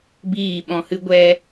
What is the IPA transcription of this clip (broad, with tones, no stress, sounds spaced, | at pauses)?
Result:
b iː˦˨ ɓ ɔ̃˧ h ɨ˦ ɡʷ ɛ˦